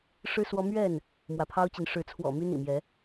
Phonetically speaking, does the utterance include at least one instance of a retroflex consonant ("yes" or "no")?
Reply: yes